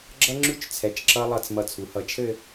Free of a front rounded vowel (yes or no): yes